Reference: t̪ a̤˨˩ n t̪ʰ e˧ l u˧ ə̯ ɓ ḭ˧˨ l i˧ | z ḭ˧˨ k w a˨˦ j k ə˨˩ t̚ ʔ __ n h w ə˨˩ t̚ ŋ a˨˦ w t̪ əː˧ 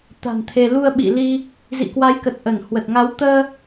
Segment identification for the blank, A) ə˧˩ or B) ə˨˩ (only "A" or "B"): A